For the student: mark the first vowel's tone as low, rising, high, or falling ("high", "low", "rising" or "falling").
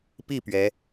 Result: falling